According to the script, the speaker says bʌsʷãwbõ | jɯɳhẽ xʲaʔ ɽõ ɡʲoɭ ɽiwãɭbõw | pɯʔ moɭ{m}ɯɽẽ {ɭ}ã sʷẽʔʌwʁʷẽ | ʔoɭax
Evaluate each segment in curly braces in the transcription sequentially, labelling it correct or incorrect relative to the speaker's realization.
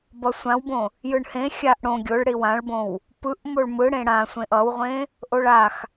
correct, incorrect: ɽ

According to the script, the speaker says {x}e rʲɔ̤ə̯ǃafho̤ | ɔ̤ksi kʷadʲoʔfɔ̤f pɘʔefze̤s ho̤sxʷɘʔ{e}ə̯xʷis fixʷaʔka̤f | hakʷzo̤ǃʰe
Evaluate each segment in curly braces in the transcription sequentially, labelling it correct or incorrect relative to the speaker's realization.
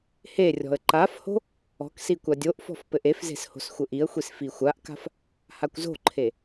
incorrect: h, incorrect: i

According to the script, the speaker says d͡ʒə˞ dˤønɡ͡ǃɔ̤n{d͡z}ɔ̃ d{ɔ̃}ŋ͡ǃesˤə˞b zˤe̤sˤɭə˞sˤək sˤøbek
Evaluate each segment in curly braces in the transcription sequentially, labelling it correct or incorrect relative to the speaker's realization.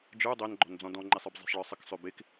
correct, correct

